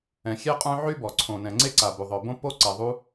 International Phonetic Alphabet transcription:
ɛ̃˩ xʲ e˥ qʼ œ̃˥ ʕ y˥ b ɔ˩ ǀʰ õ˩ n ɛ̃˩ ŋ͡ǀ e˥ ǀ a˩ b u˩ ðˤ œ˩ b õ˥ p o˥ ǀ ɛ˩ ðˤ u˥

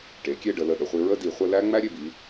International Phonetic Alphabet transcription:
ʈ e˩˧ kʲ e˥˧ ɖ ə˩˧ l ə˧˩ ɗ ə˩˧ χʷ i˧ ɹ ə˥ d i˧˩ χʷ ə˥˧ l æ˥ ŋ͡m æ˥ ɾʲ e˧ b i˩˧

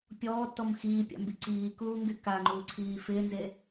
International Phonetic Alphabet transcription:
pʲ ɔː tː ɔ m x iː pʲ a̰ m b i ǀ iː k uː ŋ ɡ ɪ k a ŋ͡ǃ uː ǀʰ iː f ɪː n z e

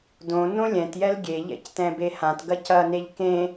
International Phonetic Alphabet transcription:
d õ n õ lʲ ɛ̃ t j ɛ l ɡʲ e ʎ ɛ̰ c t ɛ̃ b e h ã t ɡ ɐ c ɐ n e ʎ k ẽ

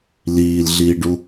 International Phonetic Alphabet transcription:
l iː l ɮ iː ɖ u

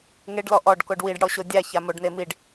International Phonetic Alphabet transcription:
ŋ e ɖ l ɔ ʔ ɔ ɖ k o ɖ w i ɖ ɽ ɔ ɕ o dʲ a ç a m o ɖ n e m i ɖ

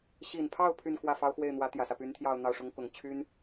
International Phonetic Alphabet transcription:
ɕ i˨˩ n pʰ ɑ˥˧ ʊ̯ pʰ y˥˧ n k w ä˥˩ f ɑ˥ ʊ̯ x w e˥˩ ɪ̯ n̪ w ä˧˥ t̪ j ä˨˩ s ä˦ p y˧˥ n t̪ʰ j ɑ˥˧ ʊ̯ n̪ ɑ˥˩ ʊ̯ ʂ ʊ˥ ŋ k ʊ˨˩ ŋ t͡ɕʰ y˥ n

